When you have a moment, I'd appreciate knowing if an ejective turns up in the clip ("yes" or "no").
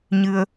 no